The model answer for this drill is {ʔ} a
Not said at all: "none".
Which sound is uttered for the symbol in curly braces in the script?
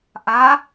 ʔ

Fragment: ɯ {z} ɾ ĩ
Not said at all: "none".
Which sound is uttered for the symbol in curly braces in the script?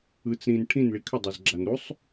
t͡s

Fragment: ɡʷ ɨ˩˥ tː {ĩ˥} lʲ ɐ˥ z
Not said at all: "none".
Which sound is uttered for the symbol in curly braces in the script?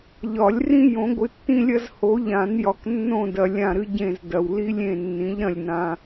ĩ˥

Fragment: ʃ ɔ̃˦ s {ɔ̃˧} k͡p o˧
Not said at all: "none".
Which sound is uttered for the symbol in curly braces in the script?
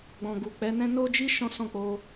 ɔ̃˦˨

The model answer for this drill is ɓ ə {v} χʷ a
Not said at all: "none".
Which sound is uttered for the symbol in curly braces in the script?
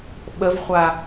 v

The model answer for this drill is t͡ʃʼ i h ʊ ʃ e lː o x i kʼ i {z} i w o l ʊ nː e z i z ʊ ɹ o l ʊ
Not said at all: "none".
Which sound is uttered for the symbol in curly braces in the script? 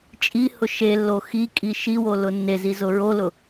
ʃ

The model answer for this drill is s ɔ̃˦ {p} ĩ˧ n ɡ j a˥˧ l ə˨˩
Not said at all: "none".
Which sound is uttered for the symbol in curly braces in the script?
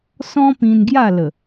p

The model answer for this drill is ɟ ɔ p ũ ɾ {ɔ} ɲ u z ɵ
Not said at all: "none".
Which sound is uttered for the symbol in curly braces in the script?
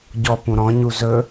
ɔ̃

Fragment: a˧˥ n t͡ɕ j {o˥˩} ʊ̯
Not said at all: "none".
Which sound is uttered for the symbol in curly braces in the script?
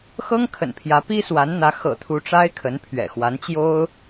o˥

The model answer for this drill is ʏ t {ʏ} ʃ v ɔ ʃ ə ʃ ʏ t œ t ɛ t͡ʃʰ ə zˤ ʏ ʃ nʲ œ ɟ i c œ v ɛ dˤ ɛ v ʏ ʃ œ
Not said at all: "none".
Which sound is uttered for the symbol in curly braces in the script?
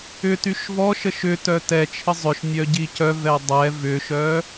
y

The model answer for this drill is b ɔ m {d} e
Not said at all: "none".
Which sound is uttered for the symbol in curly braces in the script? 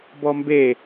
b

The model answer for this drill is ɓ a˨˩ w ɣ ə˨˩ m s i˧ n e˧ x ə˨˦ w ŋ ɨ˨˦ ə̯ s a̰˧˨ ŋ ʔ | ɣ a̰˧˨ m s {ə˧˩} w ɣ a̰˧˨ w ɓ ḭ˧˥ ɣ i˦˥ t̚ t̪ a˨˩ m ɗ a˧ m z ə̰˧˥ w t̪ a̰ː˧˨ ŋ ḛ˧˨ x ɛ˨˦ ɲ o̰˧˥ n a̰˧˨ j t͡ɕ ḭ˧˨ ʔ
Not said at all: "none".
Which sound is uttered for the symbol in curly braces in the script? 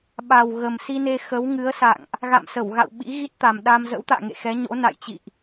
ə˧˩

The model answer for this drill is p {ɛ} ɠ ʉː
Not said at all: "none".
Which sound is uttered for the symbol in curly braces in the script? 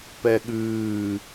ɛ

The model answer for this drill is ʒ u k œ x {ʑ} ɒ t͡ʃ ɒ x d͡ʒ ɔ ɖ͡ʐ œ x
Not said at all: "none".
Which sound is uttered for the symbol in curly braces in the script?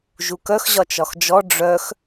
ʑ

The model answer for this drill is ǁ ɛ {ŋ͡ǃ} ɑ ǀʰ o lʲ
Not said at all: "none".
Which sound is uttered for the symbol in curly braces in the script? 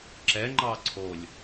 ŋ͡ǃ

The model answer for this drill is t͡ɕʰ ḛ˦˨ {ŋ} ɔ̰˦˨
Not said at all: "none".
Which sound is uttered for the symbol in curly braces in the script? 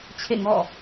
ŋ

